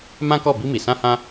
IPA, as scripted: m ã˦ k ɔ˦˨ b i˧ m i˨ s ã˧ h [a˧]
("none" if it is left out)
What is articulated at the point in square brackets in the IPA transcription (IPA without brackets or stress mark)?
ã˧